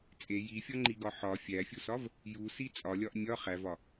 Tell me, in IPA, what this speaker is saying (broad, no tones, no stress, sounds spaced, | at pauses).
t͡sʼ e j i fʲ ɒ ŋ͡ǃ i ɡ ɒ ħ ɒ fʲ æ fʲ u s ɒ v | j u s i t͡sʼ ɒ lʲ ɒ ʔ nʲ ɒ χ æ v ɒ